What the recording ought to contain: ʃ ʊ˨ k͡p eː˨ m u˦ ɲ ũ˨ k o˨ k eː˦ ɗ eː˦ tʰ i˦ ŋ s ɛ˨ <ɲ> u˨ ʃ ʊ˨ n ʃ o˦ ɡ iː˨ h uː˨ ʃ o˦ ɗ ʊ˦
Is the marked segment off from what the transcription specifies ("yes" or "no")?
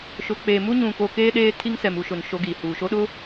yes